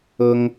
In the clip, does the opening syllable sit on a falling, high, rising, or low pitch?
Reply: high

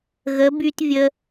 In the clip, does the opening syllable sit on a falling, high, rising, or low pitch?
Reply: rising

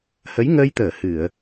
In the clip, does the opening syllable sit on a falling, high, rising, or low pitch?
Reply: rising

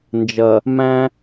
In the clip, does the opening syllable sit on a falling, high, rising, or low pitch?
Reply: low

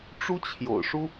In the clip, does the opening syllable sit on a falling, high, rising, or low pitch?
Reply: high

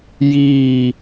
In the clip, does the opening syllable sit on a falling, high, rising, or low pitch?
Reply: falling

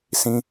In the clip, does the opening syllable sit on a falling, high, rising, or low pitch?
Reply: high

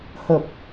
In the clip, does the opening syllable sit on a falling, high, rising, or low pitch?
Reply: low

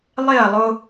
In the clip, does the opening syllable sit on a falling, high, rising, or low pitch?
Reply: falling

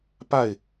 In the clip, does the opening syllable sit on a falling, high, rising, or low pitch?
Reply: falling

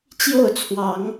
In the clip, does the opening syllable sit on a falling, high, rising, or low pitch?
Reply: falling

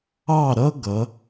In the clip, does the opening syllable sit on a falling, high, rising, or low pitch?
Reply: falling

